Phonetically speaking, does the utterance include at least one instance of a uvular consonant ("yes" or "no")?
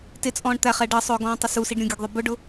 yes